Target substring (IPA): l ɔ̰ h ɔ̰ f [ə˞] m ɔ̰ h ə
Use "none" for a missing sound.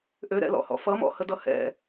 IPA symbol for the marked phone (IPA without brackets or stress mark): ʌ